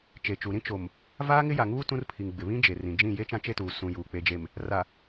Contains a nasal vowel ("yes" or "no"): yes